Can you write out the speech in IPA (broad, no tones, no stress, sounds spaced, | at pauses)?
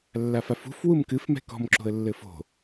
lː a f a f ṳ f w u m k ɨ f m ɛ̤ k ɔ̤ m ǁ o̤ ə̯ lː ɘ f o̤